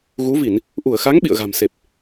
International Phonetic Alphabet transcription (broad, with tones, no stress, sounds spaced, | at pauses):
ɣ u˨˦ v i˧˩˨ n | ʔ u˧˩ ə̯ x a˨˦ ŋ ɓ ḭ˧˨ ə̯ ɣ a̤˨˩ m s e˨˩ p̚